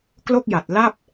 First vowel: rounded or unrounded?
rounded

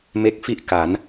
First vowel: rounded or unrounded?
unrounded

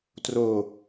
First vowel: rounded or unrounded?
rounded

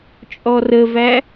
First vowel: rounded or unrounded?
rounded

